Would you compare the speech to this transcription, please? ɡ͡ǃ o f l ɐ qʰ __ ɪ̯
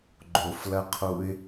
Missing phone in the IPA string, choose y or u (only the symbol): u